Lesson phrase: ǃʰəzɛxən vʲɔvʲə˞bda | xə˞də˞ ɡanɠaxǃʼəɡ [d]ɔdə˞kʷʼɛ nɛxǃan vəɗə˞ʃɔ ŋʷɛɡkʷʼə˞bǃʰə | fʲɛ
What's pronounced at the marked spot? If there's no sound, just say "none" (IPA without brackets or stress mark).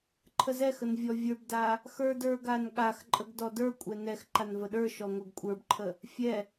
d